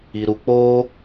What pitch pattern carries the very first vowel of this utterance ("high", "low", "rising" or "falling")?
low